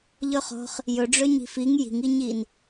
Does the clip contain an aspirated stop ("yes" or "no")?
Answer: no